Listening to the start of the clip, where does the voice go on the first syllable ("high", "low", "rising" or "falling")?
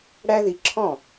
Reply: high